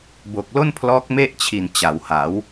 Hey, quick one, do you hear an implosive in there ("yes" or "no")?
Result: no